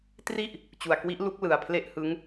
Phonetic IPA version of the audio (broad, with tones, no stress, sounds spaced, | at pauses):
t r i˥˩ ʔ | t͡ɕ u˨˩ a̯ k w i˦˥ ʔ l u˦˥ k̚ l ɯ˨˩ a̯ pʰ l e˥˩ ʔ h ɯ˦˥ ŋ